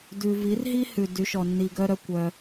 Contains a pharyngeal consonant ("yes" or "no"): no